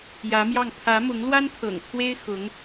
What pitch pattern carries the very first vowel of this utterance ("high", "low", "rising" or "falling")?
rising